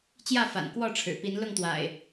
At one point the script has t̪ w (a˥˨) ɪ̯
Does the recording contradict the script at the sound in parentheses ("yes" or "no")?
yes